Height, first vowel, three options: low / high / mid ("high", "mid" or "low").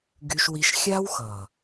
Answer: high